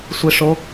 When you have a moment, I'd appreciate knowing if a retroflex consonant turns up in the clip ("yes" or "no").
yes